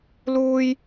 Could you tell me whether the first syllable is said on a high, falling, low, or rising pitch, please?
high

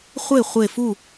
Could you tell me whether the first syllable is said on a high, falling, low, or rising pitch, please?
falling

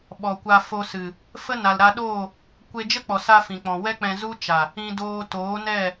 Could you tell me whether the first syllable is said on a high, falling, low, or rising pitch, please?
low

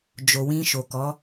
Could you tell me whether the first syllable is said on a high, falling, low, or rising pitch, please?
low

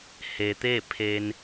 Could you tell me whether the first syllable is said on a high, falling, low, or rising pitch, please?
low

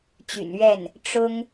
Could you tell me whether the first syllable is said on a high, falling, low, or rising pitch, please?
low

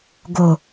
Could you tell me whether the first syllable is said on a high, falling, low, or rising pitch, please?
low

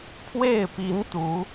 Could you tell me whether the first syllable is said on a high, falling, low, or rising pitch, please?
falling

